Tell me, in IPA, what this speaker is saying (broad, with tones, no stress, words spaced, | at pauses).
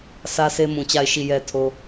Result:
sä˦se˦ mũ˨t͡ɕa˦˨ɪ̯ ʃi˦˨jɛ˦tʰo˦